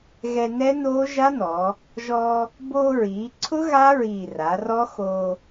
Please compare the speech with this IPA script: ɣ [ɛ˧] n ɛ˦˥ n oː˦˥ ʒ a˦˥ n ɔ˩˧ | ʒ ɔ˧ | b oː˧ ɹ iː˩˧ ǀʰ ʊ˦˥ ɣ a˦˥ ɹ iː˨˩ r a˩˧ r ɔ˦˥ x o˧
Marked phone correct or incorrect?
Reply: correct